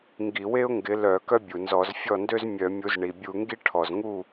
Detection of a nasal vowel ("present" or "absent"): absent